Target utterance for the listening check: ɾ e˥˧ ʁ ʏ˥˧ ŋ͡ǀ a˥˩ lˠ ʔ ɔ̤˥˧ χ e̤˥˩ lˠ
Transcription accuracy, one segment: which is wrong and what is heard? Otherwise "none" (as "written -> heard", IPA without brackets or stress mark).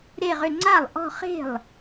none